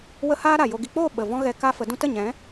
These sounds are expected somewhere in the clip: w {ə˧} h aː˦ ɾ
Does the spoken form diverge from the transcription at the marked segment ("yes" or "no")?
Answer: no